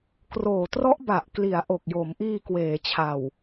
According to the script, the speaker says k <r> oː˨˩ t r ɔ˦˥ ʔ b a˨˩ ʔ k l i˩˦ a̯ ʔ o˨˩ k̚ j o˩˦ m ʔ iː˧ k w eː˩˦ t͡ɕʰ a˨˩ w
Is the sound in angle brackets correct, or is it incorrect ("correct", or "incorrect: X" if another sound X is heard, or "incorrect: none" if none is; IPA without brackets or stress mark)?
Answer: correct